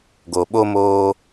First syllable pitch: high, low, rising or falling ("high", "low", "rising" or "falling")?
low